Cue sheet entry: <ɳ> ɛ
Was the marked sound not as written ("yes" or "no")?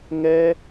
yes